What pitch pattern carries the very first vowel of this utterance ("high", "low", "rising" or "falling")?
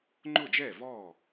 falling